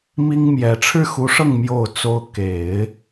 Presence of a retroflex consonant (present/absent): present